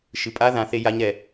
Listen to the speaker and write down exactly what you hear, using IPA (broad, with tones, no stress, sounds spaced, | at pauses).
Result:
ʃ ɨ˩ pʼ a˧˥ ð ã˩˧ θ e˧˥ j a˧˥ ɲ ɾ ɛ˩